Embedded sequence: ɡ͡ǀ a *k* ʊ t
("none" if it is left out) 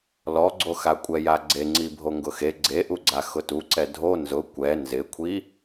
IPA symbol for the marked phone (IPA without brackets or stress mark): x